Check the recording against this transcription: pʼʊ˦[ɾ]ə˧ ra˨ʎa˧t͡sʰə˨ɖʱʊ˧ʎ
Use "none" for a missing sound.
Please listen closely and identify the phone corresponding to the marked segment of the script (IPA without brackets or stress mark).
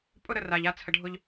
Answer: ɾ